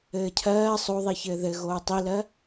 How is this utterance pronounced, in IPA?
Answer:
ɘː cʰ ɜː sˤ o ðˤ i ç ɘː ð ɘ ɣ oː tˤ i l ɜ

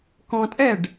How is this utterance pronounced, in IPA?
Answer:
k ɔ̃ tʼ ɛ ɖ

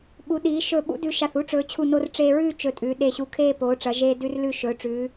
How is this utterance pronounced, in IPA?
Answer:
ɓ u˩˧ ɗ iː˩˧ ʃ ɵ˧˩ ɓ ṵ˥ d ʉ˧ ʃ a˧˩ θ u˥˧ ʈ͡ʂ ɵː˩˧ t͡ɕʰ u˧˩ n o˧ r ʈ͡ʂ eː˧ ɹ ʉː˥˧ t͡ʃ ɵ˧˩ tʼ ʉ˩˧ ɗ e˧˩ ɕ u˧˩ kʰ eː˥˧ p oː˩˧ ʈ͡ʂ ɐ˩˧ ʒ eː˧ d ʉ˧ r l ʉ˧˩ ʃ ɵː˩˧ ʈ͡ʂ ʉː˩˧

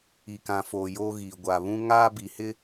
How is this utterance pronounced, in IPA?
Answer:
i˨ k ã˨ f oː˨ j oː˦ ɣ iː˨ ɡʷ a˨ β ũ˦ ŋ aː˦ b i˨ h ɪ˦

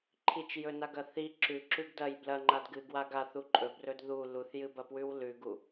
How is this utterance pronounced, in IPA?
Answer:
ǃʰ i t͡ʃ j ɵ n a ɡ ɐ θ i ǁ ʉ ǁ ʉ ɡ d ɐ j b l ɐ ŋ͡ǃ a d ɡ ɨ ɡ w a ɡ a θ u ǃʼ ɵ b r ɵ d ð u l u θ j ɨ b ɐ p w ʉ w l ʉ ɡ u

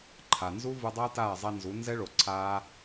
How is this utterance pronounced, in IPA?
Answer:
ǃʰ a˨ n z u˦ v ɯ˧ dˤ ʌː˦ t aː˦˨ zˤ ɛ˧ n z u˨˦ n z ɛ˦ ɭ o˨ ǀʰ aː˦

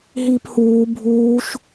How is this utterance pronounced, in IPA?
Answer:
ɦ iː p h uː bʱ uː ʃ

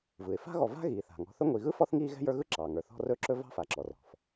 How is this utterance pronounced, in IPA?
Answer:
v ɯ˩ ɪ̯ f a̤˥ ɣ ɔ˨ v a̤˥ ɣ iː˩ θ a̤˩ ŋ ɔ̤˨ θ ɵ˥ ŋʷ i˨ ɣ ɯ˥ f ɔ˦ θ ŋ iː˦ ɣ ɛ̤˥ j ə˞˦ ɣ ɯ˥ ǁ ɑː˩ ŋ ə˞˩ θ ɔ̤˦ r ɵ˥ ǁ ɵ˥ v ɑ̤˦ f a˩ ǁ ɔ˩ r ɔ̤˩ f

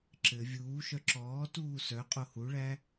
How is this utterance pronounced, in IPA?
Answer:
ǁ ɘ vʲ uː ʃ œ ǁ ɔː t uː s œ qʼ o h u ɭ æ

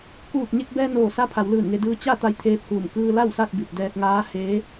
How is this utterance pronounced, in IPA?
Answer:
k uː˧˩ k̚ ɲ e˧ k̚ b ɛː˧ n oː˧˩ s a˧˥ pʰ a˩˧ w l ɯː˧˩ n ŋ e˧ d ɯː˧ t͡ɕ a˥˨ t̪ a˧ j t̪ʰ eː˧ p̚ h uː˧˩ m k ɯː˧ l a˥˨ w s a˥˨ t̚ b i˧˩ t̚ d ɛː˧ t̚ ŋ aː˧˥ h eː˧˥

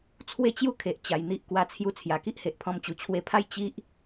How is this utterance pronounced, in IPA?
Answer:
t͡sʰ w e˥˧ t͡ɕ j u˥˧ kʰ e˨ ʔ t͡ɕ a˧ j n̪ i˦ ʔ k w a˧ t͡sʰ j u˧ t͡sʰ j a˨˩ k i˦ ʔ h e˨ ʔ pʰ ɔ̃˧ m t͡ɕ u˨˩ t͡ɕʰ w e˧ pʰ a˥˧ j t͡ɕ i˦ ʔ

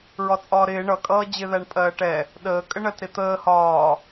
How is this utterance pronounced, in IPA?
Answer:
ɹ ɒ t͡sʼ ɒː ɾ ɪː ɳ ʌ kʼ ʌː d͡ʑ ɪ ð æ ɳ pʼ ɜː ʈ ɛ | ɗ əː kʼ ə ɳ ɜ t ɾ ɪ t̪ əː h ɒː

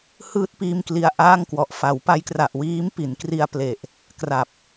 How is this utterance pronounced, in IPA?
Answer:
h ɯː˦˥ t̚ p iː˥˩ m k l i˦˥ a̯ ʔ aː˥˩ ŋ k w ɔ˨˩ ʔ f a˩˦ w p a˦˥ j k r a˨˩ ʔ w iː˦˥ m p i˩˦ n k r i˧ a̯ p l e˨˩ ʔ | k r a˨˩ p̚

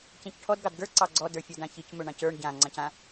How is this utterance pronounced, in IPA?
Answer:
c ẽ c ʈʰ ɔ d ɡ ɑ d ɡ ə˞ ǀ ɑ ɡ͡ǀ ɔ d ə˞ fʲ ɔ d ã ç ɯ c m ɵ ɳ ɑ̃ c ə˞ ɳ ɟ ã ŋ͡ǀ ɑ̃ c ã

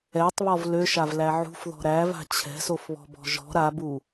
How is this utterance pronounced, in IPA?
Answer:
ɛ tˤ β ɔ v l ø ʃ a v l æ ʕ ṳ f ð ɔ̤ ɾ æ v a̤ t͡ɕʰ ɛ̤ s o f β ɔ̤ b ɔ̤ ʒ ɔ̤ ɾ a b u

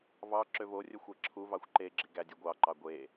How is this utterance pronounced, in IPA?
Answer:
v ɑ ǁ ø v o rʲ ɵ xʷ æ ǁʰ u v ɑ xʷ ǃ e ɡ͡ǁ i ɡ æ dʲ u ɡʷ ɑ ǃ ɑ ɡʷ e

